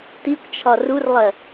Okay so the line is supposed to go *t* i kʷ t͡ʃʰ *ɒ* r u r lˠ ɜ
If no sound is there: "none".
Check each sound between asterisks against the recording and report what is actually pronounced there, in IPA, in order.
t, ɒ

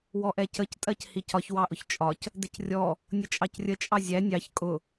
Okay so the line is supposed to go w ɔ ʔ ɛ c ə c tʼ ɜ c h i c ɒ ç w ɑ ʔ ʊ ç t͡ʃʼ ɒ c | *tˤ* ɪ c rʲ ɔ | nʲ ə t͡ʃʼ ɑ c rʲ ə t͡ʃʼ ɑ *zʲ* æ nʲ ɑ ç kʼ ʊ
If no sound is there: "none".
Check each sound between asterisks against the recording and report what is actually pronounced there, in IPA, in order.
d, zʲ

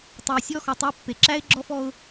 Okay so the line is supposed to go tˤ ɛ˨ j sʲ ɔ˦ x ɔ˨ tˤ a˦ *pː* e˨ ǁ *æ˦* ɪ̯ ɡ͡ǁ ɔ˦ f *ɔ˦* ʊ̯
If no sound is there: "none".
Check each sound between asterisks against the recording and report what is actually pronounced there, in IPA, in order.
pː, æ˦, ɔ˦

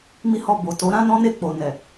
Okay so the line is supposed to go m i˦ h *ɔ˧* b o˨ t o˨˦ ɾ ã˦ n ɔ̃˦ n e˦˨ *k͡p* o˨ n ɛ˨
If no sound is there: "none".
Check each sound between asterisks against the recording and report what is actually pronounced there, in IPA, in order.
ɔ˦˨, k͡p

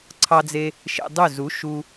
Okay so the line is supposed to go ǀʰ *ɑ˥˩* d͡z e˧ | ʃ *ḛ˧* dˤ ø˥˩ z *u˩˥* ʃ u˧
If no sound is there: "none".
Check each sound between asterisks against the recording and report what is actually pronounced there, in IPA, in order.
ɑ˧, ḛ˧, u˩˥

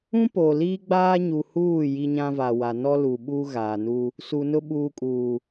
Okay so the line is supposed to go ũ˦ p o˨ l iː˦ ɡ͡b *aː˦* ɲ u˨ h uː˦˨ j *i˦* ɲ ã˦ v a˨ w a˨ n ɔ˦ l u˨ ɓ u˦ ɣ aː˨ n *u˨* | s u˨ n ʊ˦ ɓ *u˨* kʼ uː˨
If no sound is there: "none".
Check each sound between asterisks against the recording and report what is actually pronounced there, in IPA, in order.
aː˦, i˦, u˦, uː˨

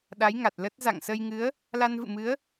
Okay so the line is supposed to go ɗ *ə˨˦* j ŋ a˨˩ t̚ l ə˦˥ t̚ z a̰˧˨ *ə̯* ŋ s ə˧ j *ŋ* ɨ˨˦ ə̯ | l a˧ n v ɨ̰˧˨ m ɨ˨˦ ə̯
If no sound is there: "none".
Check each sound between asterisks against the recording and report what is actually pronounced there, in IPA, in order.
a˨˦, none, ŋ

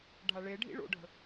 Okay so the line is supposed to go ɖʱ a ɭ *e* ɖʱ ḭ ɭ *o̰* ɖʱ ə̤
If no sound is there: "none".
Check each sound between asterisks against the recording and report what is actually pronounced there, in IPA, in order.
e, o̰

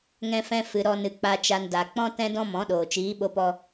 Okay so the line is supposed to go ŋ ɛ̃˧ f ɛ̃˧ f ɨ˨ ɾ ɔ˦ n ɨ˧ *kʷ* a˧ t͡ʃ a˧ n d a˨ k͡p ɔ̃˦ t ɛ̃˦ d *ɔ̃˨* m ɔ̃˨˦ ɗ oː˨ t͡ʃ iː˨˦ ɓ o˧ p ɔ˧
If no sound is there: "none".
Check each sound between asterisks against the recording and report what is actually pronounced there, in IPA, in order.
k͡p, ɔ̃˦

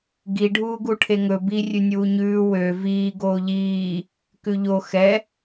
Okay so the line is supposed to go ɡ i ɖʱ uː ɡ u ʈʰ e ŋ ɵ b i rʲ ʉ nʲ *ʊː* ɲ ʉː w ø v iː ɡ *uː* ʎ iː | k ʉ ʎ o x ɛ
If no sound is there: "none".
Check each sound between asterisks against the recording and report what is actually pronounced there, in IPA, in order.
uː, oː

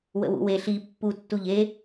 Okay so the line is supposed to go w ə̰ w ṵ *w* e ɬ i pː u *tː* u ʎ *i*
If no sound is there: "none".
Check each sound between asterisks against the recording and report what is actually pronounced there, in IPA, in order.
w, tː, e

